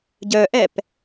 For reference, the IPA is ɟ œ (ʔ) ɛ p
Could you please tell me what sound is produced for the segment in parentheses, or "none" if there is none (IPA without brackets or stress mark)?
ʔ